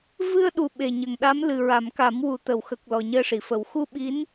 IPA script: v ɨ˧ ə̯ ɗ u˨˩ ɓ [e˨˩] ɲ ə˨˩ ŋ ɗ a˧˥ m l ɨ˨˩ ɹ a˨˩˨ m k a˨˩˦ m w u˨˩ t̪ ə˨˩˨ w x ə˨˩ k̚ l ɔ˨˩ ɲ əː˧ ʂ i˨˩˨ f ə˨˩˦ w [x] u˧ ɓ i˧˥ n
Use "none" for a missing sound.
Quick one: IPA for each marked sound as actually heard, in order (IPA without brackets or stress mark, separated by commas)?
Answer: e˨˩, x